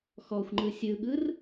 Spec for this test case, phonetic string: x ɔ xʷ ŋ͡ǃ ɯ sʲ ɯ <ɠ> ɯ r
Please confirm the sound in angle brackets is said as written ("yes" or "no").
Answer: yes